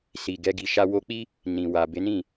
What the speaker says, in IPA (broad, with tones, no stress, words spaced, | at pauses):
si˨ɡɛ˧ ɡi˨ʃa˧ wo˧k͡pi˦ | nĩ˨wa˨ be˨˦nĩ˦˨